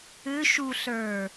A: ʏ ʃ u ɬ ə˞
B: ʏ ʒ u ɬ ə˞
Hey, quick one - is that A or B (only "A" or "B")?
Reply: A